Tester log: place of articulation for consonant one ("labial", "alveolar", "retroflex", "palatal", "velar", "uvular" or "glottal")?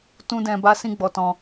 alveolar